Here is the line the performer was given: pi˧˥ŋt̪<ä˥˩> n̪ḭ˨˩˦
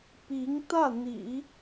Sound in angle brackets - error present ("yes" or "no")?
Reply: no